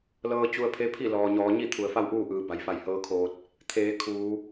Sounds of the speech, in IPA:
l ɤː˧ t͡ɕ u˧ ə̯ pʰ e˧˥ pʰ i˥˨ l ɔː˩ ɲ ɔː˩˧ ɲ i˥˨ t̪ʰ u˩˧ ə̯ f a˥˨ w ʔ uː˥˨ ʔ ɯː˩˧ b a˩ j f a˧˩ j h ɤː˧˥ kʰ oː˧ t̚ | t̪ʰ eː˩˧ kʰ uː˩˧

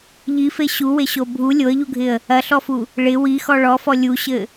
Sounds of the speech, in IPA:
ʎ i f e ɕ u w e ɕ o bʱ u lʲ o ə̯ ʎ u ɡʱ ɪ ə̯ | ɐ ɬ ɔ f u | ɭ ɪ w i x ɔ ɭ ɔ f ɔ lʲ u ɕ ɘ

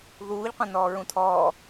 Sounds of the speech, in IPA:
ð uː ʎ qʷ ɐ̃ n ɔː ɹ ũ tʰ ɔː

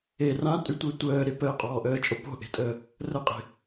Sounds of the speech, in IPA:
e r ã tʼ y tʷ e tʷ əː ɾ e p əː qʼ ɔː ʔ əː t͡ʃʼ o p o̤ ʔ e̤ tʼ əː | r ə qʼ e̤

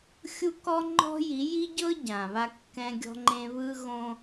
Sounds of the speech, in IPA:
xʲ u˦ k ɔ˦ ŋ͡ǃ ɔ̤˦ j i˨˦ j i˦ ɟ ɤ˦ ɟ ã˨ β a˦ kː ɛ̃˦ ɡʲ ɔ̤˦ ŋ͡ǃ ẽ˦ β ɯ˦ ɣ õ˦

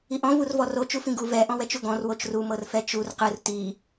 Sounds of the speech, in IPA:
i ʔ ɔ̃ v u r v ɔ r o t͡ʃ u f ĩ ɡ u v ɛ ʔ ɔ̃ w ɛ t͡ʃ u ɡ ɔ̃ r w o t͡ʃ r u m ɤ r f ɛ t͡ʃ u r q ɯ r t i

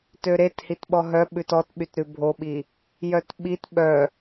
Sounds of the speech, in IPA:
t ø ɾ e t h i t ɓ ɔ ɦ œ ɓ ʉ t ɔ t ɓ y t ɾ ʉ bʱ o ɓ i | j œ t ɓ i t ɓ œ

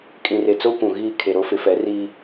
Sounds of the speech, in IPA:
kʼ ĩ˨ r e˨ t͡s o˦ kʷ ũ˨ ɣ iː˦˨ kʰ e˨ ɾ o˦ f ɪ˨˦ f ɛ˨˦ r iː˦

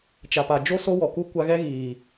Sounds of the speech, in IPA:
t͡ʃ a˨ p a˨ d͡ʒ o˦ s o˦ w ɔ˨ k u˦ kʷ a˦ ɣ ɛ˦ ɣ iː˨

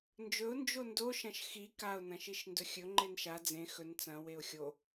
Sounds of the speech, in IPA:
n d͡ʒ ɵ ʊ̯ n d͡ʒ o n d o ʃ ɐ̃ ʃ x i k a ʊ̯ n ɐ̃ ʃ i ʃ n d ɵ xʲ ɵ ŋ͡ǃ e n ʃ a d͡z ẽ x ɵ n t͡s ɐ̃ w e ʊ̯ xʲ o

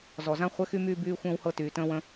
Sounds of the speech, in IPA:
z ɔ˨ z ã˦ χʷ ɛ˦ x y˦ m yː˦ b yː˦ xʷ ə̃ː˦ w h ɤ˦ t yː˨ t ə̃ː˦ w ə̃˦

